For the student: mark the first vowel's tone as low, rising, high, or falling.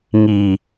low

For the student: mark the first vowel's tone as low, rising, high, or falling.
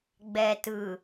low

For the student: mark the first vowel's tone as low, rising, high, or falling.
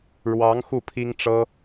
rising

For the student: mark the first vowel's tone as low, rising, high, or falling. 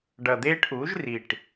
low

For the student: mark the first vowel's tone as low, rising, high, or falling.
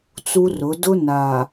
high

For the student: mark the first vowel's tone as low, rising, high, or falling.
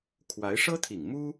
rising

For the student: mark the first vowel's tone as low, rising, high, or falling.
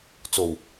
low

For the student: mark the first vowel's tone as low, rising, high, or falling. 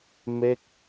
falling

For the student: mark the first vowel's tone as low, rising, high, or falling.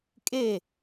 falling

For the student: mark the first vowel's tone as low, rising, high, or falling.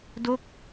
falling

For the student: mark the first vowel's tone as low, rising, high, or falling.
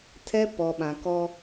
high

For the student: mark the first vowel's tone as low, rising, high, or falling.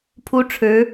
high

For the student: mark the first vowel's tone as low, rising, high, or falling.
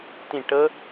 falling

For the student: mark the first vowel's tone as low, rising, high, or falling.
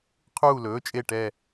falling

